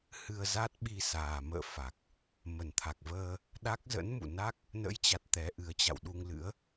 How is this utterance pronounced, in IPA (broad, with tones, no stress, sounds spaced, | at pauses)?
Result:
h ɨ˧ ə̯ z a˦˥ t̚ ɓ i˧ s aː˨˩ m ə̰ː˧˨ f a˨˩ k̚ | m ə˨˩ n t̪ʰ a˨˩ k̚ v əː˧ | ɗ a˦˥ k̚ z ə̰˧˥ n m ṵ˧˨ n a˦˥ k̚ | n ə̰˧˥ j t͡ɕ a˨˩ t̚ t̪ ɛ˨˦ ʔ ɨ˨˦ ə̯ t͡ɕ a̰˧˨ w ɗ u˧ ŋ l ɨ̰˧˥ ə̯